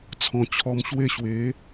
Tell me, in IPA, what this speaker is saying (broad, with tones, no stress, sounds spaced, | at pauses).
t͡sʰ ɔ̃˨˩ t͡ɕʰ ɔ˧ m ɕ w e˥˧ ɕ w e˨˦